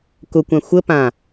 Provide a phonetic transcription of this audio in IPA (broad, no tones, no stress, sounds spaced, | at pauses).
k ʊ kʷ ã xʷ ə p ã